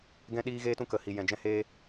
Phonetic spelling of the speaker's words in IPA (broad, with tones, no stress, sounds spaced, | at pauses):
ɡ ɛ̃˧ ɗ iː˧ ɣ eː˧ t ũ˧ k ə˨ h i˨ j ɛ̃˨ d͡ʒ ɛ̃˧ h eː˧